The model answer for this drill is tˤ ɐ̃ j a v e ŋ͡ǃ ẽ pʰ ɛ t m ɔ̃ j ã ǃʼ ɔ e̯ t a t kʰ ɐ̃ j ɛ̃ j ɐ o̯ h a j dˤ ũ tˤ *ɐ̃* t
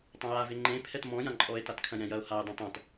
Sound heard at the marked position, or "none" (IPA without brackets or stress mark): ɐ̃